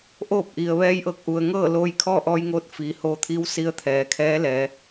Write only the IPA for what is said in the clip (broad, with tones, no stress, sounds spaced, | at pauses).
ʔ oː˥˨ p̚ ʔ i˩ ə̯ ʋ ɛː˧ j ʔ ɤː˧˩ k̚ ʔ u˩ ə̯ ŋ ɤː˥˨ l oː˧ j kʰ ɔː˥˨ ʔ ɔː˧ j ŋ oː˧ t̚ f iː˩ h oː˧ t̪ʰ iː˧˥ w s i˧˥ ə̯ t̪ʰ ɛː˩˧ kʰ ɛː˧˥ l ɛː˩˧